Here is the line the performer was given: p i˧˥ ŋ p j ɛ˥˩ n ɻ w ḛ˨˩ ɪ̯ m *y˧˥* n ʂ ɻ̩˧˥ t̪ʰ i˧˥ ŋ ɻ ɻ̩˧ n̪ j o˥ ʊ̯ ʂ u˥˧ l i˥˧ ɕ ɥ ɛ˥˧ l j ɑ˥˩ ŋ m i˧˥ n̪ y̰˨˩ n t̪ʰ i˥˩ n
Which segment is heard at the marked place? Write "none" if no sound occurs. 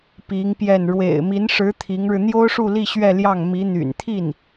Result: i˧˥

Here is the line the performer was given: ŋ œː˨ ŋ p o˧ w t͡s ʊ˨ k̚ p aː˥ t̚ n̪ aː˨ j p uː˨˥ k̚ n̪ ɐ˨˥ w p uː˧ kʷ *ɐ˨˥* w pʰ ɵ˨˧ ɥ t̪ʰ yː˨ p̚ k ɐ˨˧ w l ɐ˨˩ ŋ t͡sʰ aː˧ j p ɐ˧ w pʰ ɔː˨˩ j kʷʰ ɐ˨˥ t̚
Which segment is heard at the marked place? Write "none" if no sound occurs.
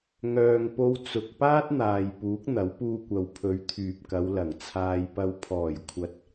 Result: ɐ˨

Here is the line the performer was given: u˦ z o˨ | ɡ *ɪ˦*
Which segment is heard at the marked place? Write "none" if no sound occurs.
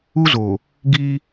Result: i˦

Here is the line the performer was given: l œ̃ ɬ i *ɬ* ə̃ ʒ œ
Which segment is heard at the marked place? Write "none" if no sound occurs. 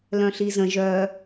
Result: z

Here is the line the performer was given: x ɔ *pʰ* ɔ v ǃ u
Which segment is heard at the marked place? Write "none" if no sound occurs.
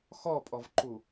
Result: pʼ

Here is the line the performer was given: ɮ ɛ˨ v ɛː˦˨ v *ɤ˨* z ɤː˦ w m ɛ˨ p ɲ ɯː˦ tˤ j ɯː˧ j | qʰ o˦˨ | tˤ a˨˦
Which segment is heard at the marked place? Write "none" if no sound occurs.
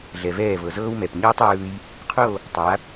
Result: ɤ˨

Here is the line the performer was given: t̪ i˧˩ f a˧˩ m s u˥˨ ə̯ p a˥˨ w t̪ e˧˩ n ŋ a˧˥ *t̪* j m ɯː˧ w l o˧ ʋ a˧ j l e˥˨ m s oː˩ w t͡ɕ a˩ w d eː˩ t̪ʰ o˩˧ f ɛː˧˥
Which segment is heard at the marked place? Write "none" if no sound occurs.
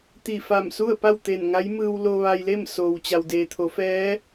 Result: none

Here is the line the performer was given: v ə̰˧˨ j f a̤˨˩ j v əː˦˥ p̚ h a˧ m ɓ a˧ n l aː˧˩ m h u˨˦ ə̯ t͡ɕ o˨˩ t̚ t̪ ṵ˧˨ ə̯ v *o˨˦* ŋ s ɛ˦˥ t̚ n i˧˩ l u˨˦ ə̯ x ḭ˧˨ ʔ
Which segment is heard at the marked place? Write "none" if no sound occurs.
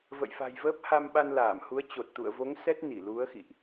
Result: o˨˦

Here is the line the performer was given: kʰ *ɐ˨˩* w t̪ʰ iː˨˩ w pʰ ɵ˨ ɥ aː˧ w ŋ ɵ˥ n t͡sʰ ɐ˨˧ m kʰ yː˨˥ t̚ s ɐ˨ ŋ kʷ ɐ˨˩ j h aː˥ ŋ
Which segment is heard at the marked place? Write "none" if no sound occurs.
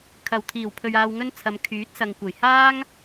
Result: ɐ˨˩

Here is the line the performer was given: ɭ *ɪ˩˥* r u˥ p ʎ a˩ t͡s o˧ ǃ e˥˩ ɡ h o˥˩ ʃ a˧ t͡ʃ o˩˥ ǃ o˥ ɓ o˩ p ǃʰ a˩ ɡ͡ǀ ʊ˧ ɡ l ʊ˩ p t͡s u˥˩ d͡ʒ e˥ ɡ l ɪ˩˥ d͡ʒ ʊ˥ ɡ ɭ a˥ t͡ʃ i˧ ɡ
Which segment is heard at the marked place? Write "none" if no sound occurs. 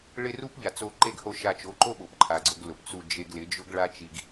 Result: ɪ˥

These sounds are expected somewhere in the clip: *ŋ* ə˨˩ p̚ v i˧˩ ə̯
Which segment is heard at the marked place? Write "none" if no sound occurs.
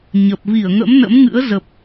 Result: ɲ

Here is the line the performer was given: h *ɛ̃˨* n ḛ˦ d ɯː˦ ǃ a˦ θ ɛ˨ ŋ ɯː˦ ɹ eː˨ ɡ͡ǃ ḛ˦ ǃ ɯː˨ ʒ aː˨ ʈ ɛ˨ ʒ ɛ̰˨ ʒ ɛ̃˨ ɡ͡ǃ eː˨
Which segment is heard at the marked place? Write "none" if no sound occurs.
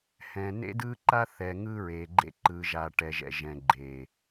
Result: ɛ̃˨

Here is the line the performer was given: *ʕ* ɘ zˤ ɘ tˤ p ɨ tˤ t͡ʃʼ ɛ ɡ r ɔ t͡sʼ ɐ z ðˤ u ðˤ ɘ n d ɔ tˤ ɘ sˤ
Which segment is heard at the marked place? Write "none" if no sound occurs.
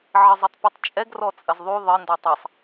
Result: ʕ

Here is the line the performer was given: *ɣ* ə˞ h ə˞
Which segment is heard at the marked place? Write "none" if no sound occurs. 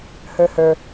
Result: h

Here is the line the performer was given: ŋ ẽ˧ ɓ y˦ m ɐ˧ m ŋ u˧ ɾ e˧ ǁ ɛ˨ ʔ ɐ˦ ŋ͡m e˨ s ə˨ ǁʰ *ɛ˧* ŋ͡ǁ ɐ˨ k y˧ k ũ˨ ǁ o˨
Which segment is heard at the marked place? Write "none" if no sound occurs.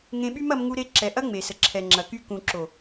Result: ɛ˨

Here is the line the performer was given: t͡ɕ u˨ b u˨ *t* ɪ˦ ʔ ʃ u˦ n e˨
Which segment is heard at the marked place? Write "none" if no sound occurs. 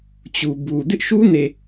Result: d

